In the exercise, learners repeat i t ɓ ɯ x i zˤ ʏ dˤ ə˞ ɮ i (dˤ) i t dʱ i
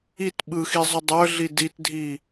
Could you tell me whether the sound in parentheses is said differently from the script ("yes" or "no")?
yes